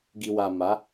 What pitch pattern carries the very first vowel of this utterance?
low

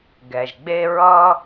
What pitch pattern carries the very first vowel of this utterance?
low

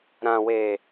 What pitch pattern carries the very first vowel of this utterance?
low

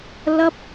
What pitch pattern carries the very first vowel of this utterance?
high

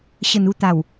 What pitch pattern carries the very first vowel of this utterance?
low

